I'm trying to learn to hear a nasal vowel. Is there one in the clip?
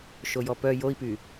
no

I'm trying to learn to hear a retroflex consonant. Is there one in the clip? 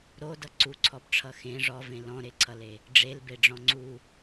yes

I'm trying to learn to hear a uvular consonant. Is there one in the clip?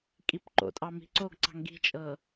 no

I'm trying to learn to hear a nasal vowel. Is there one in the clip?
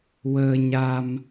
no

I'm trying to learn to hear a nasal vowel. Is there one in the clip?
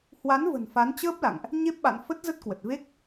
no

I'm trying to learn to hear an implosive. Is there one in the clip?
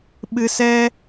yes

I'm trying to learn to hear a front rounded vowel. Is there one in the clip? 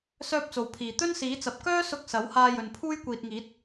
yes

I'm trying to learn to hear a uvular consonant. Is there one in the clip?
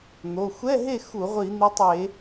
yes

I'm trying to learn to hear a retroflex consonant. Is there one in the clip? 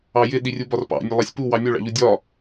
yes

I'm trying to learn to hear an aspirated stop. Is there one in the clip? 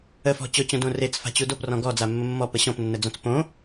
no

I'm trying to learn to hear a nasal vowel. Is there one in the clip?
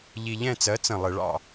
yes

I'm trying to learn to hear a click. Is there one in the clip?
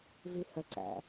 yes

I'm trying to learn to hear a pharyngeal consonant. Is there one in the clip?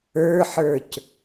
yes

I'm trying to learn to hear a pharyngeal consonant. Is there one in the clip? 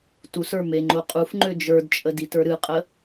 no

